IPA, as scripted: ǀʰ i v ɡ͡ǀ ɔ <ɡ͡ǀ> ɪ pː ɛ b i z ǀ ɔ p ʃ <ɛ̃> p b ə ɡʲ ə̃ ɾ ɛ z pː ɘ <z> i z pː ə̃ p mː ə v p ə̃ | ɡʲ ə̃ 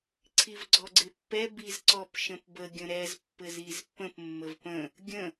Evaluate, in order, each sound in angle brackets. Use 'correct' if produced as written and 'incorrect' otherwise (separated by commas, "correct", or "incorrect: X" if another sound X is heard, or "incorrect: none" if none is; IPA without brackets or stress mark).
correct, incorrect: ə̃, correct